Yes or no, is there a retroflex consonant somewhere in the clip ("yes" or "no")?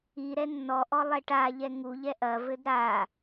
yes